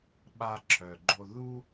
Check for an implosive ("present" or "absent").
present